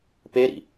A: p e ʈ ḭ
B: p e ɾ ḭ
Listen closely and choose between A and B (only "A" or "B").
B